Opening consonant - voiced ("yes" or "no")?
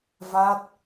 yes